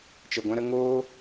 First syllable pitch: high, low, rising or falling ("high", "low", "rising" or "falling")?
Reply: low